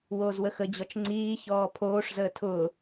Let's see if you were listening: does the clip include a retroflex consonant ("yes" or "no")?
yes